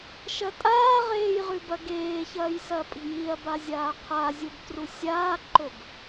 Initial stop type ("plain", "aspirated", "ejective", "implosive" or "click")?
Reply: ejective